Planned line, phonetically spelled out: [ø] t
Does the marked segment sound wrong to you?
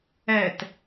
yes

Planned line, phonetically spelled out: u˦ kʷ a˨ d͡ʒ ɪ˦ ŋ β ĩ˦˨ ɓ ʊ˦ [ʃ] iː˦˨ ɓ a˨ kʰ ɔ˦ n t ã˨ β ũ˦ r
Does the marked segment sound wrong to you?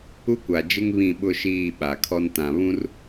no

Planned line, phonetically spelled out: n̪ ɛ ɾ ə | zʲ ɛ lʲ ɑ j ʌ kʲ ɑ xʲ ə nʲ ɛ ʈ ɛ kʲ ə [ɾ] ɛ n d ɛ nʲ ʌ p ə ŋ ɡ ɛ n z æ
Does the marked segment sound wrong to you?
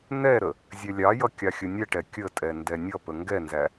yes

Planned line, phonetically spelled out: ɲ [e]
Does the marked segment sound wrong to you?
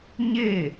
no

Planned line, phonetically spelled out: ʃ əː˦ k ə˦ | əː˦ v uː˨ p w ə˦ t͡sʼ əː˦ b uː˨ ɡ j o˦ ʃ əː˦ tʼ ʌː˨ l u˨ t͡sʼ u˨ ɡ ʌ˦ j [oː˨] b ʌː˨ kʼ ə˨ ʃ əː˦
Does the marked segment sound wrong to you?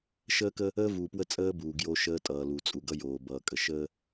no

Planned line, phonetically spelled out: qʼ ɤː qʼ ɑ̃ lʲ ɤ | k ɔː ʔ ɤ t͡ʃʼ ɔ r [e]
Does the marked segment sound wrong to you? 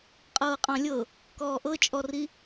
yes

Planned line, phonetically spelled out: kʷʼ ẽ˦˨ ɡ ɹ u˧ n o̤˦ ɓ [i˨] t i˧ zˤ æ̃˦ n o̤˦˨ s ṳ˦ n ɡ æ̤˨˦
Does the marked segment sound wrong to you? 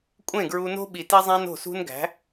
no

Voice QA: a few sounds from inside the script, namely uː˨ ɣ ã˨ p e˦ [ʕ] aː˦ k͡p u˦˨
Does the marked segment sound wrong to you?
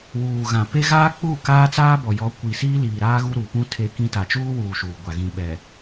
yes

